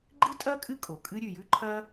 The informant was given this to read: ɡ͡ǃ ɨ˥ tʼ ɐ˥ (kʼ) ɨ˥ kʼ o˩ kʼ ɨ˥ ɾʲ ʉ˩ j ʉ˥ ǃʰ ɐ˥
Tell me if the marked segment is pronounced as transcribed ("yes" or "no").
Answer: yes